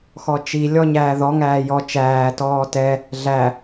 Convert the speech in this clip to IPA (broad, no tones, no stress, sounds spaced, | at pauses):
x ɔ t͡ʃ i lʲ ɔ ɲ æː ð ɔ ŋ æː j ɔ t͡ʃ æː t ɔː t ɛ | ɮ æ